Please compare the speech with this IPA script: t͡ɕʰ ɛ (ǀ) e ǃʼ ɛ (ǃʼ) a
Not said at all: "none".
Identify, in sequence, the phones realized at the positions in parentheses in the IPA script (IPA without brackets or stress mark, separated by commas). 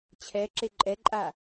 ǁ, ǃʼ